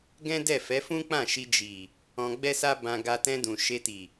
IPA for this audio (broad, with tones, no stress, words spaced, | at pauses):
ɡɛ̃˦dɛ˦˨ fɛ˨˦fũ˦ k͡pã˦˨ʃi˧ d͡ʒi˨ | ɔ̃˧ɡ͡bɛ˦sa˦ bã˧ ɡa˧ tɛ̃˧dũ˨ ʃe˧ti˨